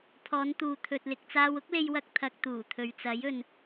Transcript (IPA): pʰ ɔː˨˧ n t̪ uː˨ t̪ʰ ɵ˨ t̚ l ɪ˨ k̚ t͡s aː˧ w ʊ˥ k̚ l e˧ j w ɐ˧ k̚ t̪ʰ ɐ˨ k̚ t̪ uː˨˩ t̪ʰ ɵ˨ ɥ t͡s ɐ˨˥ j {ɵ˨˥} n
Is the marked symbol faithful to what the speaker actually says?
no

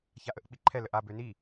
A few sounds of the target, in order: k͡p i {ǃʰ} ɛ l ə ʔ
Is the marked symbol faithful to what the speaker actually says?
yes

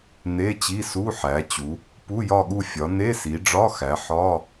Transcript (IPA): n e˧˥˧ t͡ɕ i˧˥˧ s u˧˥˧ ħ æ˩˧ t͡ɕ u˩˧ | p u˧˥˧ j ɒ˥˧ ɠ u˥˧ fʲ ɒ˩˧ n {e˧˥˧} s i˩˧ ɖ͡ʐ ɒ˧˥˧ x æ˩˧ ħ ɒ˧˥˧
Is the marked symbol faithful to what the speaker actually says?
yes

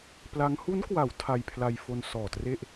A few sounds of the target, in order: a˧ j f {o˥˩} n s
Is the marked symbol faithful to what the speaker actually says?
no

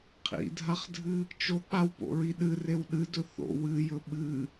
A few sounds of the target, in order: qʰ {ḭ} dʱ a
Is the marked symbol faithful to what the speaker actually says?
yes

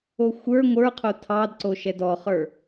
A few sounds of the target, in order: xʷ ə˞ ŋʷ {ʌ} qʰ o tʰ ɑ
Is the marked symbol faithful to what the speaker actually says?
no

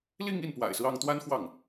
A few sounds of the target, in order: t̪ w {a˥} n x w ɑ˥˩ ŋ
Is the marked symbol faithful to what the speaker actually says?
yes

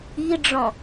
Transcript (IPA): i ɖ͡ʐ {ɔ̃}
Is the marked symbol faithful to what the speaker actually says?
yes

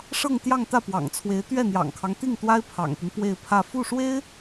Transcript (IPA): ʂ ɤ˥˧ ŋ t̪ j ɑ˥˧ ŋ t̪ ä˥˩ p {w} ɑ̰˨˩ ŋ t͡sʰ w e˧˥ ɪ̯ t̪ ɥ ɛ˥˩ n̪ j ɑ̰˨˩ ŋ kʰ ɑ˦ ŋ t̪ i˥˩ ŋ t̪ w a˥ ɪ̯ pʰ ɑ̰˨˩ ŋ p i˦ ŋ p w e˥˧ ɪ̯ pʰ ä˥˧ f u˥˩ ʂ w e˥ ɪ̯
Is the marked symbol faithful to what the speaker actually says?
yes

